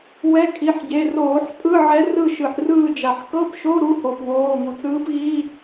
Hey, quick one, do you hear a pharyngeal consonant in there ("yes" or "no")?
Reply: yes